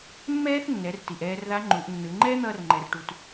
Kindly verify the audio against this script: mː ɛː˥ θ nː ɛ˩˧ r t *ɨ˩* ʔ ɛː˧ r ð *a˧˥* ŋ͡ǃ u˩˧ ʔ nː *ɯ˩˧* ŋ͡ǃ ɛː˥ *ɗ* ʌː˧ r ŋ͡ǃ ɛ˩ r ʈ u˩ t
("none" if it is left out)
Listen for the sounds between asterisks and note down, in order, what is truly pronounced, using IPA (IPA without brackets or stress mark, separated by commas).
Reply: i˩, a˧˥, ɯ˩˧, n̪